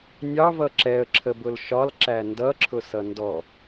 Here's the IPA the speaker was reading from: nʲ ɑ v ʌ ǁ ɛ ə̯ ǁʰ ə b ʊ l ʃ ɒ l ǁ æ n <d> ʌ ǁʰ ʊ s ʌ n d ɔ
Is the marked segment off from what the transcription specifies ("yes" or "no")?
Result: no